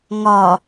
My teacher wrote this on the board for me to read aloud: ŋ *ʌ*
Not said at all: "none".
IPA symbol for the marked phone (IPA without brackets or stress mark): ɒ